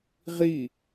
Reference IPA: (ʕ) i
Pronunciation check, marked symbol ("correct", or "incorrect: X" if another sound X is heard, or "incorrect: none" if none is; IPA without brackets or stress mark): incorrect: ʁ